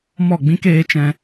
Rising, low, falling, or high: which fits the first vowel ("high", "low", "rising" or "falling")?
falling